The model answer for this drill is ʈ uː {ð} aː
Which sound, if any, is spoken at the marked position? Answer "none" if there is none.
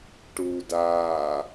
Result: d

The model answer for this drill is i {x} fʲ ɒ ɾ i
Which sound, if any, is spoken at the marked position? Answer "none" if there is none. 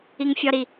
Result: ŋ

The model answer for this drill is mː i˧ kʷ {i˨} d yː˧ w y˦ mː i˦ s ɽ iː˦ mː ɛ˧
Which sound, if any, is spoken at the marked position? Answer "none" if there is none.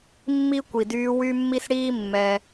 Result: i˨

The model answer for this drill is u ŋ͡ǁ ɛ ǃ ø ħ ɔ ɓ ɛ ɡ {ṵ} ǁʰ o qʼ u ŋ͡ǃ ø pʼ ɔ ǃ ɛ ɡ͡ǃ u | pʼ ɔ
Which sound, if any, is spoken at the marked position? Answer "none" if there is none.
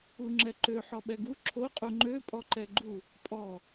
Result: u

